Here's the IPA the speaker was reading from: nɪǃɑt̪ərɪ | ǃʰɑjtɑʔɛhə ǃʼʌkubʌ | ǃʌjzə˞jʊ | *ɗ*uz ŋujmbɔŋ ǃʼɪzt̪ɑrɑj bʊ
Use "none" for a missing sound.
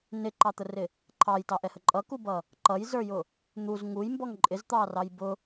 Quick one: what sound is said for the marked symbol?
n̪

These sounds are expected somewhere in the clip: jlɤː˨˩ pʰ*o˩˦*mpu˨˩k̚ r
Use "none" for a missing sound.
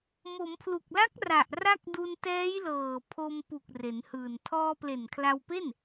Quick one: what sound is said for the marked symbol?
o˧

